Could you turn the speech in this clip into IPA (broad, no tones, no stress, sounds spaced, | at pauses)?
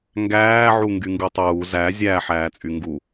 ŋ ɡ æː ʕ u ŋ ɡ y ŋ ɡ u tˤ uː z æ zʲ æ ħ æː t͡sʼ y ŋ ɡ u